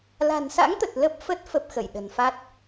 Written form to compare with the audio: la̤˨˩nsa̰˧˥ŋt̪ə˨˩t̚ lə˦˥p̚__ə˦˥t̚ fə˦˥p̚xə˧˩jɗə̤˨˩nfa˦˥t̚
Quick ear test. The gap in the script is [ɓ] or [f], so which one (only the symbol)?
f